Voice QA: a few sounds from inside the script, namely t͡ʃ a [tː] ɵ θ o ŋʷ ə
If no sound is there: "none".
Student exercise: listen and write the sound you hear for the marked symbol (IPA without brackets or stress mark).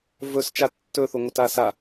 tː